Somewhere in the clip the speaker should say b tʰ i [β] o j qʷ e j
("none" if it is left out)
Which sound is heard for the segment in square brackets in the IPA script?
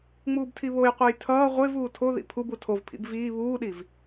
β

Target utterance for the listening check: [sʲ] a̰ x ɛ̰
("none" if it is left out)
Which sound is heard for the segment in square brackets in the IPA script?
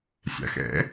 sʲ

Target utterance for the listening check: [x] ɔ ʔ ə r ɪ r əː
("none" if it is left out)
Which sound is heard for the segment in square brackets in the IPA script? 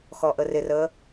x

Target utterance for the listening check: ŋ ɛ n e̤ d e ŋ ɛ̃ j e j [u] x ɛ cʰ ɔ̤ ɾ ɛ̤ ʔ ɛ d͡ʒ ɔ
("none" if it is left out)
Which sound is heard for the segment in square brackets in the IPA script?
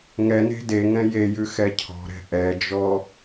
ʉ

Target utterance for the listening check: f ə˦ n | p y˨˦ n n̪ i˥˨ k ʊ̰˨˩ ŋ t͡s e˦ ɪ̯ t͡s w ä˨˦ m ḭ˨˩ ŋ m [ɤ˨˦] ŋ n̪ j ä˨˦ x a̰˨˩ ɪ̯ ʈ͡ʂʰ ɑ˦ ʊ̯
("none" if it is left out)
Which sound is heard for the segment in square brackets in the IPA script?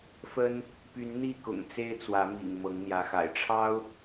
ɤ˨˦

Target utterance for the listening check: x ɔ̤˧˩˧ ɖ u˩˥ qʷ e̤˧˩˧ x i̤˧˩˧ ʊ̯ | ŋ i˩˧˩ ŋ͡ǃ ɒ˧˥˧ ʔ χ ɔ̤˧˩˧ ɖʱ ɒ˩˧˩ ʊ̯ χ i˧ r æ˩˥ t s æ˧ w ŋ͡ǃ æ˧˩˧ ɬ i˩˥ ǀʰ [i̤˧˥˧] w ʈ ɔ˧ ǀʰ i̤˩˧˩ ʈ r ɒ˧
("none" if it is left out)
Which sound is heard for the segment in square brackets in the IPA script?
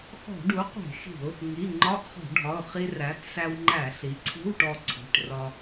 i̤˧˥˧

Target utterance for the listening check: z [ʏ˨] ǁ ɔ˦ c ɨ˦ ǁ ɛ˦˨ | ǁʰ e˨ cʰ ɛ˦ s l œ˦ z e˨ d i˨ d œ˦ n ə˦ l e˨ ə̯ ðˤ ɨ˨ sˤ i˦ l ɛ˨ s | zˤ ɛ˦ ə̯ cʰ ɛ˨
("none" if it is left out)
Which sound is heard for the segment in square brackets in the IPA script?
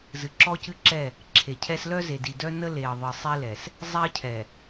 ɨ˨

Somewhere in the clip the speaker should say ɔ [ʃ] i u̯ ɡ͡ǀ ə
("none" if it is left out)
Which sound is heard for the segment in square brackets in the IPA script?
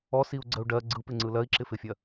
s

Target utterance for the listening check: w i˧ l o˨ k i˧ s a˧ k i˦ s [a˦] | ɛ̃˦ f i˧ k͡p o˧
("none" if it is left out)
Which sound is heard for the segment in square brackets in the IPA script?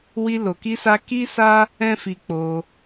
a˦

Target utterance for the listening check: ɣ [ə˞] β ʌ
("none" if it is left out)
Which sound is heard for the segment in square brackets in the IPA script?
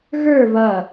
ə˞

